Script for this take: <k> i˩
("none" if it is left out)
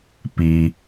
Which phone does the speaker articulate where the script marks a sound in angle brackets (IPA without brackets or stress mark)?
p